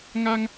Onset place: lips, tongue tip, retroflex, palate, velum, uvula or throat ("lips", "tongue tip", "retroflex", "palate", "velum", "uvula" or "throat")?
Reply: velum